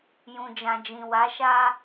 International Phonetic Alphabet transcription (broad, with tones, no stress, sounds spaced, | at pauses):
j ũ˨ d͡ʒ ã˨ d͡ʒ ĩ˨ w a˨˦ ʃ a˦